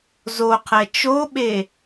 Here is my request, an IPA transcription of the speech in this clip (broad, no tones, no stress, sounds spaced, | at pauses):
z o qʰ ɛ t͡ʃ o ɓ e